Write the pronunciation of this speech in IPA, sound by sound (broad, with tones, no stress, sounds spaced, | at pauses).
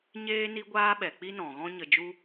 ɲ eː˦ n i˦ ɡʷ aː˦ ɓ ɛ˨ k͡p i˦ n ɔ̃˨ ɣ ɔ̃˦ ɲ ə˧ d͡ʒ u˦